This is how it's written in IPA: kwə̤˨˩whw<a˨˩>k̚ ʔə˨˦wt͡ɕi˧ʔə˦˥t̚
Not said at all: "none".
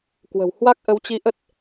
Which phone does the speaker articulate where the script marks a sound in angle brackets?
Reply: a˦˥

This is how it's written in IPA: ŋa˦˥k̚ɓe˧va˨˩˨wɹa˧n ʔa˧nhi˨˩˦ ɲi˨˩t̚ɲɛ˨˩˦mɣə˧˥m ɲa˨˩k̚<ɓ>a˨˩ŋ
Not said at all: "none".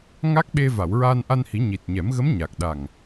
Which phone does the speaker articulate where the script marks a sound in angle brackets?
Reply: ɗ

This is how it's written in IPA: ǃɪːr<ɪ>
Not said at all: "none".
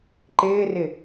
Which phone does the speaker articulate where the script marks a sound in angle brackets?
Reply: ɪ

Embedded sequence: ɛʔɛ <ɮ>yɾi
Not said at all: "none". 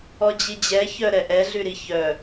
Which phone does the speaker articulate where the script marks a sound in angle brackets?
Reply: ɮ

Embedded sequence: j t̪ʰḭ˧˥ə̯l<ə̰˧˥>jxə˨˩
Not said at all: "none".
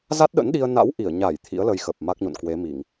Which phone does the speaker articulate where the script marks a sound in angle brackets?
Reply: ə˧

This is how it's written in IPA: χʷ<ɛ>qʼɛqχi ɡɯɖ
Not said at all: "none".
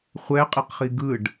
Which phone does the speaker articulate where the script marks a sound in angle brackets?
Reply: ɛ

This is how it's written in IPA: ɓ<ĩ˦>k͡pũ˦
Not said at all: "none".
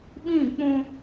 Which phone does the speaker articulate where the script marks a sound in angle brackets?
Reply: ĩ˦˨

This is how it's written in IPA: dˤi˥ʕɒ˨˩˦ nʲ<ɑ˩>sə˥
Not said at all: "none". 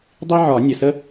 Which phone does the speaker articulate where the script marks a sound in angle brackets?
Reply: ə˩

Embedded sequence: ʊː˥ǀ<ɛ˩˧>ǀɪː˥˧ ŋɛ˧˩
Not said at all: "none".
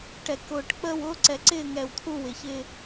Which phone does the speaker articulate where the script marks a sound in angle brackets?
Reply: ɛ˩˧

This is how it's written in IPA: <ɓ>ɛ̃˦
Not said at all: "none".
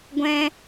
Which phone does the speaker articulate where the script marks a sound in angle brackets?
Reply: ɡʷ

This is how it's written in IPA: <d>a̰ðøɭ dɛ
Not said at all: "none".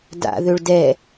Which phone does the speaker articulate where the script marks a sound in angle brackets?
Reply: d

